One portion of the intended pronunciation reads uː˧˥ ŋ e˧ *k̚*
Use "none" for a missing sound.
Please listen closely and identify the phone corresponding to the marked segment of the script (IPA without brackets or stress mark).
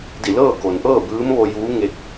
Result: k̚